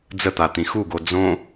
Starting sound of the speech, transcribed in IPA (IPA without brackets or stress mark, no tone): d͡z